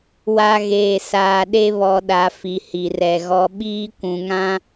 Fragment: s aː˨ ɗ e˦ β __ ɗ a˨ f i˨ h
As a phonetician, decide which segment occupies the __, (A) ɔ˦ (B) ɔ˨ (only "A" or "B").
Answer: B